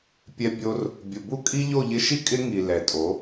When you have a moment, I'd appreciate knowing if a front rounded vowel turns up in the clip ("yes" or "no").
no